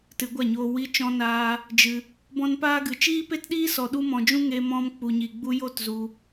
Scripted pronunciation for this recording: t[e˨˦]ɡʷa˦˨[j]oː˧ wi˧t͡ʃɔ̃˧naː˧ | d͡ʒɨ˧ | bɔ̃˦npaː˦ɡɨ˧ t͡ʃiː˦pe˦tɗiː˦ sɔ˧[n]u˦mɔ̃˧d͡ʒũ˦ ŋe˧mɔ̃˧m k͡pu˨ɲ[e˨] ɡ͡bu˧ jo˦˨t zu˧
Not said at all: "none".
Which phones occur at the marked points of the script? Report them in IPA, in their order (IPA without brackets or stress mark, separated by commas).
ɨ˨˦, ɲ, ɗ, i˨